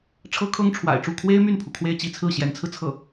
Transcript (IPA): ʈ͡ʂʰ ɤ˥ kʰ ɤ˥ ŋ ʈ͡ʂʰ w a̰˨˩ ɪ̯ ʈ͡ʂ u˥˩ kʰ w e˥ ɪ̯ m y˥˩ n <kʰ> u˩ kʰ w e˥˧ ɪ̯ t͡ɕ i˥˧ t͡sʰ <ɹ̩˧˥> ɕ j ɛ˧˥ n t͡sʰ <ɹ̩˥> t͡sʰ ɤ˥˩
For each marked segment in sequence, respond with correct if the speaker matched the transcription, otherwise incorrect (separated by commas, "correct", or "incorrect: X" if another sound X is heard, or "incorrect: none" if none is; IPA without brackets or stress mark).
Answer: incorrect: pʰ, incorrect: ɹ̩˥˩, incorrect: ɹ̩˧